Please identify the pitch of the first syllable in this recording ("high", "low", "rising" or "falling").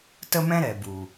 high